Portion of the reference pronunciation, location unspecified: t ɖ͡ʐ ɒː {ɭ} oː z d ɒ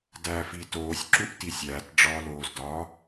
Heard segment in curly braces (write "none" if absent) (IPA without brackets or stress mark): l